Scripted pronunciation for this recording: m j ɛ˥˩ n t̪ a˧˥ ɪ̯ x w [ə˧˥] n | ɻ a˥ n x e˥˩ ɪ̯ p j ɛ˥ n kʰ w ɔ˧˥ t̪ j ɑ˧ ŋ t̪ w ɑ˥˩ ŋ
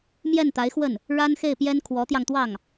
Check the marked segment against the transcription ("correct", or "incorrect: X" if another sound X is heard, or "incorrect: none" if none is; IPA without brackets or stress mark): incorrect: ə˥˩